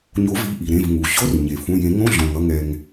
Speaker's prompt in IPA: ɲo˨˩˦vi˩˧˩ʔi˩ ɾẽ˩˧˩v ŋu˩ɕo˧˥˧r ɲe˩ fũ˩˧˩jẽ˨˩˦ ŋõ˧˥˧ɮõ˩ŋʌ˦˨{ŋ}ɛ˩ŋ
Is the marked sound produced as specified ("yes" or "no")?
yes